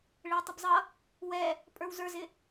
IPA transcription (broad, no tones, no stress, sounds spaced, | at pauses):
ɭ ɪ w tˤ ɪ b zˤ ʌ | w ɛ | pʼ ə˞ w z ə˞ z ɪ